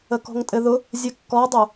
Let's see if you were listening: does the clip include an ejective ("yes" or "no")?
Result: yes